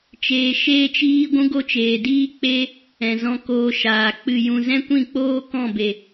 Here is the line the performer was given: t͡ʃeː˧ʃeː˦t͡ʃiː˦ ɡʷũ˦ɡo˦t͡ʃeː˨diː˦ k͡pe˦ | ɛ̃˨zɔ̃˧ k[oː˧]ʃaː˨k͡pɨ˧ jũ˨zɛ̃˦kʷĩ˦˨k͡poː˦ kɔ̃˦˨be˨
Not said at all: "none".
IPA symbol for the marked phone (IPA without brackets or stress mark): oː˧